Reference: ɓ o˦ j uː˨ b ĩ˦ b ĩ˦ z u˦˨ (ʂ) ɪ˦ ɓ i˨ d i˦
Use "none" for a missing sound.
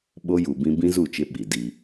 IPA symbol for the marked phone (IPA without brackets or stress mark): t͡ʃ